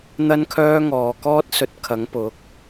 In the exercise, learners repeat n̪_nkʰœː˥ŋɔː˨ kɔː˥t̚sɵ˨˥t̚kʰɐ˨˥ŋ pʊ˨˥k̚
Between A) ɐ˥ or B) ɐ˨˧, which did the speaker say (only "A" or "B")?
A